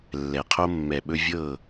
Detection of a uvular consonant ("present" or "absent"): present